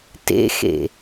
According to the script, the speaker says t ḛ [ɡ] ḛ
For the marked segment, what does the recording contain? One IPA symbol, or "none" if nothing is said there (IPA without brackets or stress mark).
x